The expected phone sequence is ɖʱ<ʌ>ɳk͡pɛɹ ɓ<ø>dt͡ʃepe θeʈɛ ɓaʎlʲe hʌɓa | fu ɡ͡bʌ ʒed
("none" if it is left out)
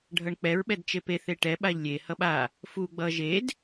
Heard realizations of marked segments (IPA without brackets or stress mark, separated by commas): ʌ, ɛ